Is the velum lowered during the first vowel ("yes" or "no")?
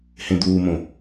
yes